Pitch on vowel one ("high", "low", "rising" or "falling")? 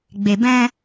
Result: low